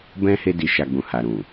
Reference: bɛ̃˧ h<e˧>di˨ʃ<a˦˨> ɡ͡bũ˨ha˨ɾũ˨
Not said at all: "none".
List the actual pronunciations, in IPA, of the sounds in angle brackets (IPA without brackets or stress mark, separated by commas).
e˧, a˨